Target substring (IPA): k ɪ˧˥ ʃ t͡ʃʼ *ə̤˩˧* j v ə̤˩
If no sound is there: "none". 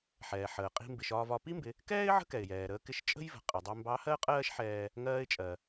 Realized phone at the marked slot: ə̤˥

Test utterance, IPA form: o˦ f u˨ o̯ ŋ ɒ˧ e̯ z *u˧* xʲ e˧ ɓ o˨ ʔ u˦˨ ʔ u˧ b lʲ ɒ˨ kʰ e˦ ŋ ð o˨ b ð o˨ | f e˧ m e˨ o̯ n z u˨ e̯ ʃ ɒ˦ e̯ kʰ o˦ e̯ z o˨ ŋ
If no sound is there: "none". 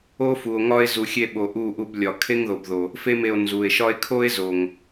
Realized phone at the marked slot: u˨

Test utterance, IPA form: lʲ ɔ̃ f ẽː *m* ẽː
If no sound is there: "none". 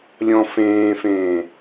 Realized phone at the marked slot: f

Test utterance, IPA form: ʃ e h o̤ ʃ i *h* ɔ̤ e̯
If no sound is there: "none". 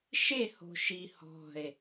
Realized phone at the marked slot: h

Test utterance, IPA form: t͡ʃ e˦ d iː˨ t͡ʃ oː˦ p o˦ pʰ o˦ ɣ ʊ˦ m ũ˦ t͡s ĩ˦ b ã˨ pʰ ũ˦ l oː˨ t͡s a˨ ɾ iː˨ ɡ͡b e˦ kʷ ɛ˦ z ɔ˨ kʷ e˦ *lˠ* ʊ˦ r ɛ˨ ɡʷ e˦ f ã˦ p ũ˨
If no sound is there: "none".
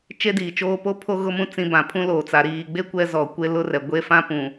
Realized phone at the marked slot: l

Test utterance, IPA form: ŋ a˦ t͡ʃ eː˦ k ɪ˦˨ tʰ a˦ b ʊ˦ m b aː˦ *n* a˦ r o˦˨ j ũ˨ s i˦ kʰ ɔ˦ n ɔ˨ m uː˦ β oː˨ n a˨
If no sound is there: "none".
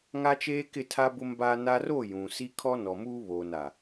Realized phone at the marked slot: n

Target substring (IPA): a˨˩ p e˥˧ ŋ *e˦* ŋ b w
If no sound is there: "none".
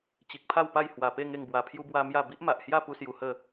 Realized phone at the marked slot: e˥˧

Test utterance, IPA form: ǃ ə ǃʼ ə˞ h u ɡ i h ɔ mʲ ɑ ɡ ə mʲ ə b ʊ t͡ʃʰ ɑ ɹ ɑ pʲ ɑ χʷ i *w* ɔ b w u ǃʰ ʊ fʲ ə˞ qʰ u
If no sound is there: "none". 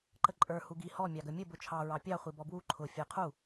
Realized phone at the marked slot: b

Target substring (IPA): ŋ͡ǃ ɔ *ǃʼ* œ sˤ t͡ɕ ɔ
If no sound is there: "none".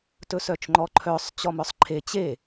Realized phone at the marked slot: ǃʰ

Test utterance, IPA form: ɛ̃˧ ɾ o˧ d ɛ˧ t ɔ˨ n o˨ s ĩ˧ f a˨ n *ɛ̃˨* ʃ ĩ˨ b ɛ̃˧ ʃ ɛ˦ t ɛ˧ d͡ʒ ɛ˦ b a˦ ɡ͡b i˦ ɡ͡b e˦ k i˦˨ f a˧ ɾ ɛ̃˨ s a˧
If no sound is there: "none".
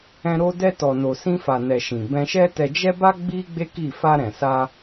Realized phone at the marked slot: ɛ˨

